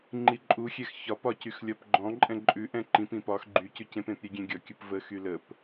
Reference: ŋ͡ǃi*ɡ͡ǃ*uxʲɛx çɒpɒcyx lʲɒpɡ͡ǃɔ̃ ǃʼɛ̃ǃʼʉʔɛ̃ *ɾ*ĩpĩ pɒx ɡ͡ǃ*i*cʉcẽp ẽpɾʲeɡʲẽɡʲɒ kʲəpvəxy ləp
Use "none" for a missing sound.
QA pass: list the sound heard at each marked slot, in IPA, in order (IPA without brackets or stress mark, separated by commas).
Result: ǃʼ, ǃ, y